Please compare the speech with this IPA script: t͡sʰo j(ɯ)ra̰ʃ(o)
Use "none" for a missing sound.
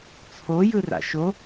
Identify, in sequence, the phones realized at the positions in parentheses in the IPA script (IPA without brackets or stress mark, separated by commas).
ɯ, o